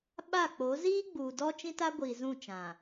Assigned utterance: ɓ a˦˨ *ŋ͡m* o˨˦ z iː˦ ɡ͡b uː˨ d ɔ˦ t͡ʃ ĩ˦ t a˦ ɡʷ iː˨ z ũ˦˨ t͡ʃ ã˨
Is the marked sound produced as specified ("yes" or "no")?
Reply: no